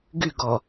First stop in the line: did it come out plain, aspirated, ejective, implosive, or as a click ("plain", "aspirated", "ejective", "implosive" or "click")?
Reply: plain